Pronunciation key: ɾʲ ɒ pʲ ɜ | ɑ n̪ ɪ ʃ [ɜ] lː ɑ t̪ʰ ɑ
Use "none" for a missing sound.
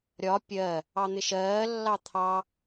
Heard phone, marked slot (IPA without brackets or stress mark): ɜː